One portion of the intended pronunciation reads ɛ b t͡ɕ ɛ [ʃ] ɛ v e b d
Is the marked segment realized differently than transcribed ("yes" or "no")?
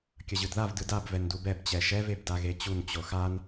no